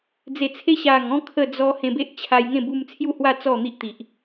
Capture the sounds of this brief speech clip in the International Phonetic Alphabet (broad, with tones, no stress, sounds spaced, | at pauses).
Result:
d͡z e˨˩ t͡sʰ e˧ ɕ a˨˩ ŋ ɔ̃˧ kʰ ə˥˧ d͡z ɔ˦ h ẽ˧ b e˦ ʔ t͡ɕʰ a˧ j ŋ ẽ˥˧ b u˧ m t͡sʰ j u˥˧ h w a˥˧ t͡s ɔ˥˧ n̪ i˦ ʔ t̪ i˨ ʔ